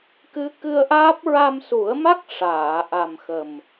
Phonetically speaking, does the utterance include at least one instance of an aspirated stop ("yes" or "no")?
no